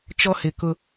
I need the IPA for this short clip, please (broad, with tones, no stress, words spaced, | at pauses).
t͡ʃɔ˦hɪ˨kʊ˦